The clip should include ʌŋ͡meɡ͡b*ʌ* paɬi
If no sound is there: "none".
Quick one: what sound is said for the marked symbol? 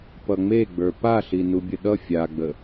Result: ə˞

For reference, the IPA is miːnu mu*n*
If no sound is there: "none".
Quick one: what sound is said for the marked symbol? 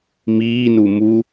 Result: none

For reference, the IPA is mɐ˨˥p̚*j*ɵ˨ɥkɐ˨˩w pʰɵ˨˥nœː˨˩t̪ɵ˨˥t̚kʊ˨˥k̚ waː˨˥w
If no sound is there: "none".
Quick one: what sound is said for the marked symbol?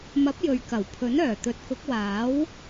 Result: j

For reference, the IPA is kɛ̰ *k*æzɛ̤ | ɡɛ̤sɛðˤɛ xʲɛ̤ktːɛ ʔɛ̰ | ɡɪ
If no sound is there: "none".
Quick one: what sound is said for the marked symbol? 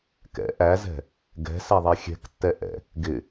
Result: ʔ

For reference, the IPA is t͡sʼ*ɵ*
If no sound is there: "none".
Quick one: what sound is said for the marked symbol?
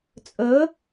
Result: ɵ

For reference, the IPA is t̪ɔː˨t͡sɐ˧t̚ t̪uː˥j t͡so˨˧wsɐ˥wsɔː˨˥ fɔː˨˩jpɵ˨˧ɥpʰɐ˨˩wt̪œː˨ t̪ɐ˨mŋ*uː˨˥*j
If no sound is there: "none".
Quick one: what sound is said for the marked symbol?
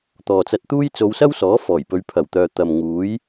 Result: uː˨˥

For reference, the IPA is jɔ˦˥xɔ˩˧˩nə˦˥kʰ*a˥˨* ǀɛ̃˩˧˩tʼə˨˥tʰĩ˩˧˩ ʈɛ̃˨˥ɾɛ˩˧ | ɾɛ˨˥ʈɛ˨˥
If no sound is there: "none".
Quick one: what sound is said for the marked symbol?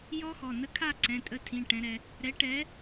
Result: a˥˨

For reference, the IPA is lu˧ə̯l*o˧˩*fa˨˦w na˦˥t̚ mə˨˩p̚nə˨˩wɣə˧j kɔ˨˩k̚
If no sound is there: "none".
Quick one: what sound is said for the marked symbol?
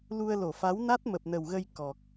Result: o˧˩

